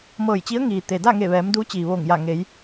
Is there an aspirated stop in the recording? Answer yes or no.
no